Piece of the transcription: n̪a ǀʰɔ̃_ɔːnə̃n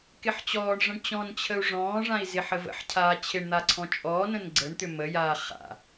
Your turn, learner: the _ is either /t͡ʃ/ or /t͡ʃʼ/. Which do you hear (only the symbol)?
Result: t͡ʃʼ